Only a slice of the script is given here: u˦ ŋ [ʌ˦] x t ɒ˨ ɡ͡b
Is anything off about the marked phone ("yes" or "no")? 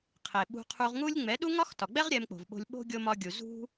yes